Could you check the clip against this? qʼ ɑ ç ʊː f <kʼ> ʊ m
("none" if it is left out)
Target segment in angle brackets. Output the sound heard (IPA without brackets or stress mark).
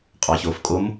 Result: kʼ